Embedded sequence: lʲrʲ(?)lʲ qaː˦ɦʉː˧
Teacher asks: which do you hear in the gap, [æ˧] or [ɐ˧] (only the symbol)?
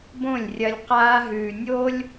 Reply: ɐ˧